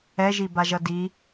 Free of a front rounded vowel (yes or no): yes